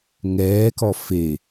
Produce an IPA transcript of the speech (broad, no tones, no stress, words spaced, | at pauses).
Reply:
ŋɛːkɔ fe